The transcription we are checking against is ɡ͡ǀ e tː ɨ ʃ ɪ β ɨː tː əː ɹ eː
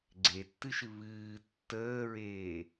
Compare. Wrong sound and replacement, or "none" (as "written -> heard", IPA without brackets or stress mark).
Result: ɪ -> ɨ